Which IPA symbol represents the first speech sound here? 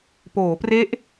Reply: p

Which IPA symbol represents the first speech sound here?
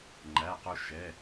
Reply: ŋ͡ǃ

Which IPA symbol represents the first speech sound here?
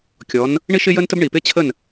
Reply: kʲ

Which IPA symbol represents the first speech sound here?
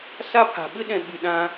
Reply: s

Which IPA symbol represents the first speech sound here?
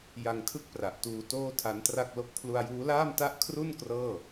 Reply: j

